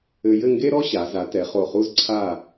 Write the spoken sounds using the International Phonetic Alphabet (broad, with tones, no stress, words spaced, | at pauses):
ɘ˧jɘ˥˧ ŋɡe˥ɾɔ˥ɕa˩˧ za˩˧tɛ˩˧ χo˧˩χu˥z ǀʰa˥˧